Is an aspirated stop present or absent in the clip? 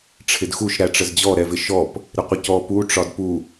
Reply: present